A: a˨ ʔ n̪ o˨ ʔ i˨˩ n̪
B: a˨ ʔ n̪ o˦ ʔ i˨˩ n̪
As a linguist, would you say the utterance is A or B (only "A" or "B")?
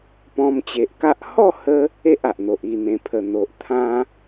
A